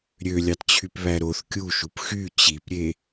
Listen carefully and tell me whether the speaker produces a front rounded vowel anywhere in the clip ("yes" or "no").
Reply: yes